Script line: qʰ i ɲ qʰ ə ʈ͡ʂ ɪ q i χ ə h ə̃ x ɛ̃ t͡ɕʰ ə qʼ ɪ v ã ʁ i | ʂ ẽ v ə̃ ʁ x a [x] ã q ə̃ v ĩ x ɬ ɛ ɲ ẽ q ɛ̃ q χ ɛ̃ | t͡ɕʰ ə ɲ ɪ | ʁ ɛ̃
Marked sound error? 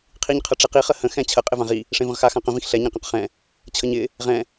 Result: no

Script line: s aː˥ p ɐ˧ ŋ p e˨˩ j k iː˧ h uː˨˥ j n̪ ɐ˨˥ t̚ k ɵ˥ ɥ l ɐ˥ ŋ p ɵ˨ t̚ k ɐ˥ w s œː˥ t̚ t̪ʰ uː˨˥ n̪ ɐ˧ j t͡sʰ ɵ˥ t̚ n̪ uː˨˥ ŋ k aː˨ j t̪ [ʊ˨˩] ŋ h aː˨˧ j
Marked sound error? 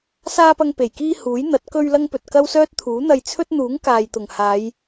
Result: no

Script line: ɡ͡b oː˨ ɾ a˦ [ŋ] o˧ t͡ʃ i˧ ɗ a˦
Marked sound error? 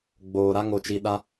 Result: no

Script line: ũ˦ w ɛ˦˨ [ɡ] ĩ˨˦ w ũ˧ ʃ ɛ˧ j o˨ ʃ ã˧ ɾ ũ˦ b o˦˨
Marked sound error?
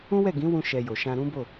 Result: no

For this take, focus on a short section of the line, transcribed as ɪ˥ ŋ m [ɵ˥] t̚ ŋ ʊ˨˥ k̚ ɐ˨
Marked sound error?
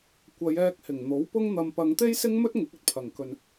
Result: no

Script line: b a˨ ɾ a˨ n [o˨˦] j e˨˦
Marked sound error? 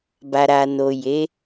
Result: yes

